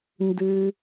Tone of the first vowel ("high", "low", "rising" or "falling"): high